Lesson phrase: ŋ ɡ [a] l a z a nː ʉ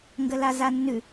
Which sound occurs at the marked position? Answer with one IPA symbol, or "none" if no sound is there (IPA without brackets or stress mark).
ə